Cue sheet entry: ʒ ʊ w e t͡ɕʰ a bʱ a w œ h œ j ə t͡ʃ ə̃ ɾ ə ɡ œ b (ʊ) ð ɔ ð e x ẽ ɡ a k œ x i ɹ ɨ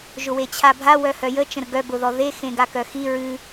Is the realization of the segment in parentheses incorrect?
no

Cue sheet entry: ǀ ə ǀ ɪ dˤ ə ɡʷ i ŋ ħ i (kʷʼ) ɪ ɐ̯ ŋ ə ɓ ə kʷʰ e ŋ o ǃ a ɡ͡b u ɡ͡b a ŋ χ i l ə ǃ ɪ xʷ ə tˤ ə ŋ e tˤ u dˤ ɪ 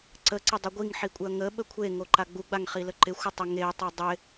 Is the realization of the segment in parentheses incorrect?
no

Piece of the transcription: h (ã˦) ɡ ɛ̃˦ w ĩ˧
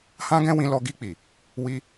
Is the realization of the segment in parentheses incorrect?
no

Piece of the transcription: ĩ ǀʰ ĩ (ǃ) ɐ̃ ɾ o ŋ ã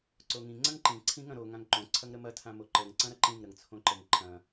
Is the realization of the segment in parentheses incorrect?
yes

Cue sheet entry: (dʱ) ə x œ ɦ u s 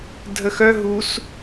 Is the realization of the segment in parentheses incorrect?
no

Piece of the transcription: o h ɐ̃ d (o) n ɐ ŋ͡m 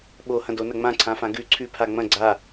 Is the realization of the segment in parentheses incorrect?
no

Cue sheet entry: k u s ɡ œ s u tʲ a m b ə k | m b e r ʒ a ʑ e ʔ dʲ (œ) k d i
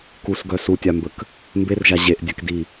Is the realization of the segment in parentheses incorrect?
no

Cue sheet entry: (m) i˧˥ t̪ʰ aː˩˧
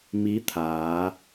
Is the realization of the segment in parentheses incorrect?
no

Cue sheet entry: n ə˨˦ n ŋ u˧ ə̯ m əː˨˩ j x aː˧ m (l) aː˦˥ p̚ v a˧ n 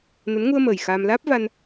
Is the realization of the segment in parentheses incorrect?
no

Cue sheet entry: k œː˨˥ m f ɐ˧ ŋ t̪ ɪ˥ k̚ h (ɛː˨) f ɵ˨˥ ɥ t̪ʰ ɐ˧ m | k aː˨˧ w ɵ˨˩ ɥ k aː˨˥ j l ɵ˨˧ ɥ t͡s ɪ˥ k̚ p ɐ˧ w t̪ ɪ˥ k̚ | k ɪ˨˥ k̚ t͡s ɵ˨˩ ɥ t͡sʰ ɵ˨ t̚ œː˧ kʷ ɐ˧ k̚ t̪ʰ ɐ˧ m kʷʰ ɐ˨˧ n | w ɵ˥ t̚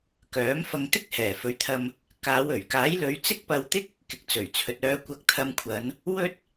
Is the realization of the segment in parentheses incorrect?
yes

